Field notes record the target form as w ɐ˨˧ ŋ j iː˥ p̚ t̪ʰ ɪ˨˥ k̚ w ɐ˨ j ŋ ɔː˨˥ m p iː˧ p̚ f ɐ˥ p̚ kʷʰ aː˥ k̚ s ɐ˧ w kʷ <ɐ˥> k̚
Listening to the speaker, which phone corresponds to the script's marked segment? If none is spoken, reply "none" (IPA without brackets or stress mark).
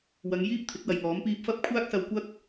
ɐ˥